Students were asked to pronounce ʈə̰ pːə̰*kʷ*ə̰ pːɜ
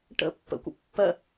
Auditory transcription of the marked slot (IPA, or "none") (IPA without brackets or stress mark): kʷ